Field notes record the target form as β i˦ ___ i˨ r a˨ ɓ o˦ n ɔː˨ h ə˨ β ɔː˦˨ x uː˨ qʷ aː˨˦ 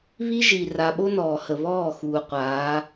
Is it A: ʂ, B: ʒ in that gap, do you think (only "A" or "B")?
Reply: B